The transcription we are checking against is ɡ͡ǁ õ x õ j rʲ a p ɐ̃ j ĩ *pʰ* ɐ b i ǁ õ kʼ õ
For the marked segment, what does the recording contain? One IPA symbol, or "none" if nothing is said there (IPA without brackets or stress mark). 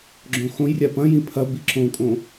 pʰ